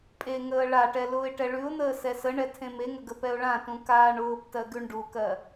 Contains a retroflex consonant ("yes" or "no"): yes